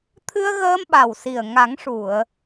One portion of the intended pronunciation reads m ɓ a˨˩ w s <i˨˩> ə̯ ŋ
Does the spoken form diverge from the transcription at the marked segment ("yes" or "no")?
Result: no